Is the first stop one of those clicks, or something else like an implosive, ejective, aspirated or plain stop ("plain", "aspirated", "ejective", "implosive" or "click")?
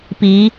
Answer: plain